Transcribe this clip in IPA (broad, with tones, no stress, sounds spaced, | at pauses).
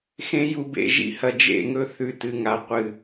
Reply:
x ẽ˦ j u˧ b ḛ˧ ʒ ḭ˦ h ɐ˧ d͡ʒ ḛ˦˨ ŋ ɵ˦ θ ʉ˧ t ɨ˨ ŋ a˨ qʷ ɨ˨